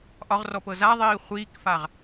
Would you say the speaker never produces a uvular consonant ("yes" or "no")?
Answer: no